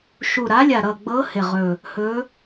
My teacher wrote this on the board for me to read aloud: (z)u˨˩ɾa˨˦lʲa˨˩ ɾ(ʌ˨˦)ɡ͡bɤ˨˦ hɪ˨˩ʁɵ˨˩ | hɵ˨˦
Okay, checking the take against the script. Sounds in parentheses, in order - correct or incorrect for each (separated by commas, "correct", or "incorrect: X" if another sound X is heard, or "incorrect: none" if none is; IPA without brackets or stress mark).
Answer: incorrect: ʃ, incorrect: ʌ˨˩